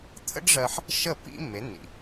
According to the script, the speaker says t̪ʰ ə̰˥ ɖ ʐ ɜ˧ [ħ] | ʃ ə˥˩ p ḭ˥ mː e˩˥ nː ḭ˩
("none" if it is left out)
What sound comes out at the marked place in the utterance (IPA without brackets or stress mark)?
ħ